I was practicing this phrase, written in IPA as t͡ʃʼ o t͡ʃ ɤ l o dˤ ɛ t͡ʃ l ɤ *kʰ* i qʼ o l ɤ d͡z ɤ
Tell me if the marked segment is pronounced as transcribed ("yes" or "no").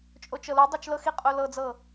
no